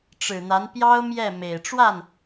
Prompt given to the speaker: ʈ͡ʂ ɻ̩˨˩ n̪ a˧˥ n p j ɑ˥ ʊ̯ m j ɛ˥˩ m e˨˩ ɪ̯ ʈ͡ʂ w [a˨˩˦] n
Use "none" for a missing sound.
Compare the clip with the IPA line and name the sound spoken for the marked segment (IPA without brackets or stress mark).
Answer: a˥˩